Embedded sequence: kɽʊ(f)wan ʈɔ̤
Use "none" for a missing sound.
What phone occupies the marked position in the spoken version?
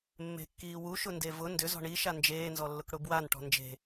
b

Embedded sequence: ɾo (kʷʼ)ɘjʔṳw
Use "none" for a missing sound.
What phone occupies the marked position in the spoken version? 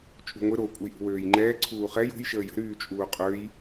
kʷʼ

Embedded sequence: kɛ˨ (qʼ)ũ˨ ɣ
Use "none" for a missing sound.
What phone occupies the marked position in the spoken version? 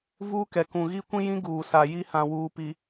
k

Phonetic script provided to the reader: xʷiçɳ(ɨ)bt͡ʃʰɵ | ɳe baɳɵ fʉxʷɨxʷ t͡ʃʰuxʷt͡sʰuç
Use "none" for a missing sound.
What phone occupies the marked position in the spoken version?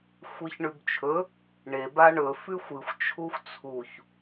ʉ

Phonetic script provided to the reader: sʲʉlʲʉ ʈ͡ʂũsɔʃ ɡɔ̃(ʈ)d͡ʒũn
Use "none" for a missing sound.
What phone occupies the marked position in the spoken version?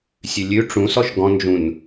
n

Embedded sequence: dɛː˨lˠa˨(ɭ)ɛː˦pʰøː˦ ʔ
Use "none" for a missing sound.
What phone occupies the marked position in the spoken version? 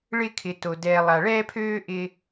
ɭ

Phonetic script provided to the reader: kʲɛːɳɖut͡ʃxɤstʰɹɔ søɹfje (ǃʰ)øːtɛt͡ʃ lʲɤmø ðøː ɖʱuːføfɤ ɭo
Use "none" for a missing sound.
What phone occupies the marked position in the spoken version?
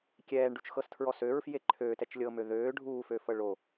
ǃʰ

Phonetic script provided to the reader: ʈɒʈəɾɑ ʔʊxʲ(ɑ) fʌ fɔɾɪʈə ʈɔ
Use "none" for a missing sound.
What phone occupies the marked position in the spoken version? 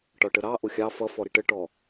ɑ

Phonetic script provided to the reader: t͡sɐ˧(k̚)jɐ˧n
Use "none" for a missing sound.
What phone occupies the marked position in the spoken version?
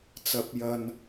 p̚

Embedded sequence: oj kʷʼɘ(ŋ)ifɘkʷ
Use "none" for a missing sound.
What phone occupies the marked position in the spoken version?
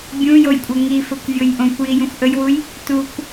ŋ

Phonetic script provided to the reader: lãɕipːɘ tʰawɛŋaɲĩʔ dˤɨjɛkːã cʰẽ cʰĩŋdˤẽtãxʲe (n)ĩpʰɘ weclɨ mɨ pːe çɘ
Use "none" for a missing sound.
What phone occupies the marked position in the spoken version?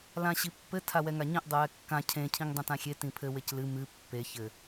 t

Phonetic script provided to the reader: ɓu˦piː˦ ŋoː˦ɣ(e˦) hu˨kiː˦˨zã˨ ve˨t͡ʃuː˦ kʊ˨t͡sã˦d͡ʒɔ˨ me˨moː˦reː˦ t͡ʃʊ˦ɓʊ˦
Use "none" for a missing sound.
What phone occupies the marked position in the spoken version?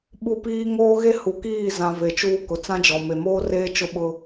e˦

